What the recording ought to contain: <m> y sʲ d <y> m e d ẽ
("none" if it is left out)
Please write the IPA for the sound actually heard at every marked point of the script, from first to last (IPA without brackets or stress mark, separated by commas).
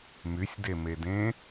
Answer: m, e